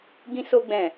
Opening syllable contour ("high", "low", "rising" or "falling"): high